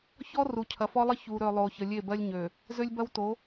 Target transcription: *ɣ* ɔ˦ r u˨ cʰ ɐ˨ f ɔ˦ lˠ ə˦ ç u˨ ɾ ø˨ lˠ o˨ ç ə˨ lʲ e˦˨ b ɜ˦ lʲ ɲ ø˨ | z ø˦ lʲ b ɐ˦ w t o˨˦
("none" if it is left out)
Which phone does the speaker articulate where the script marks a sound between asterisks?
ç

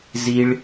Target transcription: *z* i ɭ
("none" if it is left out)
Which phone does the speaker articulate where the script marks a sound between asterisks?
z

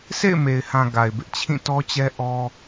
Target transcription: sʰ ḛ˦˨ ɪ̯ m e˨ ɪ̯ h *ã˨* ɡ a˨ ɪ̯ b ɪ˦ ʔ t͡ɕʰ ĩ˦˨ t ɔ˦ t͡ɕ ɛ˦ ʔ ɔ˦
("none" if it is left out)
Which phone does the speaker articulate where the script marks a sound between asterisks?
ã˨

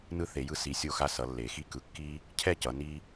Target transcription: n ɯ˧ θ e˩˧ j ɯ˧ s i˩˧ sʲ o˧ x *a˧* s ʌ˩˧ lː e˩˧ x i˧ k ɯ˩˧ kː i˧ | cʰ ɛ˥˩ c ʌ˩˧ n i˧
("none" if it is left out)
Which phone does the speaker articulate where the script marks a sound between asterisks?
a˧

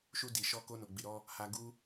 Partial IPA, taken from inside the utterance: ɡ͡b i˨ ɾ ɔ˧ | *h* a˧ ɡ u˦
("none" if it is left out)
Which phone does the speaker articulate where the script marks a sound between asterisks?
h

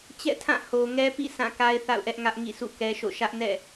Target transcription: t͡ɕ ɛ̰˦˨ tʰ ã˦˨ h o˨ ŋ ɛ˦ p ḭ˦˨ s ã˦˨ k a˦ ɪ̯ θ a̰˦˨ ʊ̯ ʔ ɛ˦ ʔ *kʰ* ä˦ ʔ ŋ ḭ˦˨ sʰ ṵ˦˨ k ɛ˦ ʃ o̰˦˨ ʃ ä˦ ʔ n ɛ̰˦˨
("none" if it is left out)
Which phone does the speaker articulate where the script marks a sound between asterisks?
ŋ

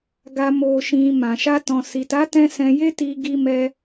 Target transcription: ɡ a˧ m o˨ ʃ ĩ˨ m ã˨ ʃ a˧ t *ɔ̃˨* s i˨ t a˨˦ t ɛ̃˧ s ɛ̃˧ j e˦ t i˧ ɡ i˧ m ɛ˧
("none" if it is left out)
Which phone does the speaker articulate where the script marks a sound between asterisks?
ɔ̃˨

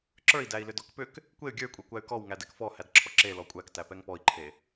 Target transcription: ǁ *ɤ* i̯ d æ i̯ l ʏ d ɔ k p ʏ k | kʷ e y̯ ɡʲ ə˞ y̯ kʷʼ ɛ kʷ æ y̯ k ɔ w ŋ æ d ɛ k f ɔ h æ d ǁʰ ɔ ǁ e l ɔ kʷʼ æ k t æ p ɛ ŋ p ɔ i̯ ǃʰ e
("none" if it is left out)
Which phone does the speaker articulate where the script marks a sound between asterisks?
ə˞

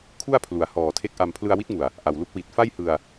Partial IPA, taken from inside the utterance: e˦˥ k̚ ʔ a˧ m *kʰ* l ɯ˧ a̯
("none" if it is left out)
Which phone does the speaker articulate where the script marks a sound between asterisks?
pʰ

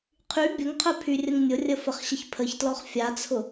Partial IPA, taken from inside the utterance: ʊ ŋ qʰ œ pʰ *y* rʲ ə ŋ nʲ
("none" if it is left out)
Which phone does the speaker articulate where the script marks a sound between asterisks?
y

